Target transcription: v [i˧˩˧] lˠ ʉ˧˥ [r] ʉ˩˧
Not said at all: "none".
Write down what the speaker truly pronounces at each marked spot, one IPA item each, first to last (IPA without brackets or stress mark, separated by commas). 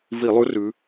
i˧˩˧, r